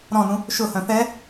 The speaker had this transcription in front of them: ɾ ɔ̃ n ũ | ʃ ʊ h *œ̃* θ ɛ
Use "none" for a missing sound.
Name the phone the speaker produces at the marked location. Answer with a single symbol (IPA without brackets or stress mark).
œ̃